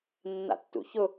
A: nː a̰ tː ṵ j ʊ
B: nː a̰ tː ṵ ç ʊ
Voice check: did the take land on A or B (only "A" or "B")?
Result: B